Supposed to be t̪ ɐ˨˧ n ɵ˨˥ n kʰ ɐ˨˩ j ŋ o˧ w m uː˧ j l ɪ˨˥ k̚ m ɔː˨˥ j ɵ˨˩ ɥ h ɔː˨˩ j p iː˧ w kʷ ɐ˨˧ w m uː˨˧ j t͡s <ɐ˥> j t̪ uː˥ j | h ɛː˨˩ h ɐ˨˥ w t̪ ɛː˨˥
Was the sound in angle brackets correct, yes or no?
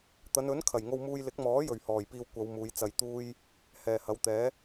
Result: no